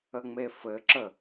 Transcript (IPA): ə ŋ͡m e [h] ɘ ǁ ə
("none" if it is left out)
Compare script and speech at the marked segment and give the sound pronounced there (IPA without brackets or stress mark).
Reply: f